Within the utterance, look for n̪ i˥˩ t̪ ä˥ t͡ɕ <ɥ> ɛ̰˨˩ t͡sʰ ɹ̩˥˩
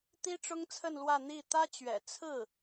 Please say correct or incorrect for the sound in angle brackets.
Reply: correct